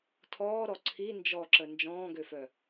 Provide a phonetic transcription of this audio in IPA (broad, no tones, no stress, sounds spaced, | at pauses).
tʰ ɔː ɾ ɔ ǀʰ i n d͡ʒ ɔ ǁ ə n d͡ʒ ɔ̃ː ɡ ø f œ